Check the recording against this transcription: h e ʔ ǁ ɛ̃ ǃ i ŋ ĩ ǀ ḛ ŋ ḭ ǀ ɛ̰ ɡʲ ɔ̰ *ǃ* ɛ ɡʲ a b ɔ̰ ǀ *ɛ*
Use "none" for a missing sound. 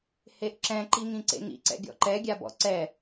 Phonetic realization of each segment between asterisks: ǃ, ɛ

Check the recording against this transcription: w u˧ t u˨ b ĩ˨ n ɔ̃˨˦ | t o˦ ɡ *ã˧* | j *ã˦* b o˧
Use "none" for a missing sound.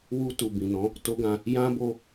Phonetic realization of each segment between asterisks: ã˧, ã˦

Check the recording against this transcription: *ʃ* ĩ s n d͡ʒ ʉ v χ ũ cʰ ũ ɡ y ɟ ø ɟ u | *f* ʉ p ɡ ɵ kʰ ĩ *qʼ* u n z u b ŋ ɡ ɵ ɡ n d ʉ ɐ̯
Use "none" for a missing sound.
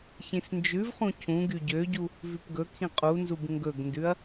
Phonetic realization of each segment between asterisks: ç, v, qʼ

